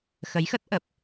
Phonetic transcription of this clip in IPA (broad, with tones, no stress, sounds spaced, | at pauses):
x ə˨˦ j x ə˦˥ t̚ ʔ ə˨˩ p̚